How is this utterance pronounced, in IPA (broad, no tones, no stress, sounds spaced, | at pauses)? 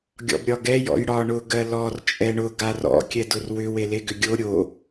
ɡʲ ɔ̰ b ɾʲ ɒ ɡ ɛ j ɔ̰ j ɽ ɒ ɳ ʊ ɡ ɜ l ɔ r t͡ʃʼ ɛ ɳ ʊ ɡ a r ɔ̰ kʲ ɛ d ʊ r w ʏ w e l e ɡ ʏ ɡʲ o ɾʲ o